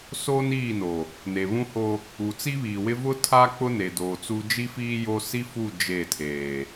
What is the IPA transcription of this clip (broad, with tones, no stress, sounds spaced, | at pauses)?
s oː˦ n iː˦˨ n o˨ | n e˨ β ũ˦ h o˦ | u˨ t͡s i˦ β iː˨ w ɪ˦ v ʊ˦ tʰ a˦ k͡p ʊ˦ n e˨ d oː˨ t͡s u˦ d͡ʒ i˦ f iː˦ j o˦ s i˦ f u˦˨ d͡ʒ e˦˨ tʰ eː˨